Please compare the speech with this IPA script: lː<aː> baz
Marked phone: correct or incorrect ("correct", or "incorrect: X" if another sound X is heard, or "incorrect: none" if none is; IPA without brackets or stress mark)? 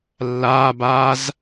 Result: correct